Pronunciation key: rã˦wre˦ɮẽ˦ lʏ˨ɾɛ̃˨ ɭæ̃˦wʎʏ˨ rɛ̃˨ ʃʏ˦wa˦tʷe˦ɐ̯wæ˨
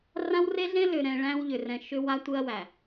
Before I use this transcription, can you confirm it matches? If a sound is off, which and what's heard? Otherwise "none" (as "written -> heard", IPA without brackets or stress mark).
none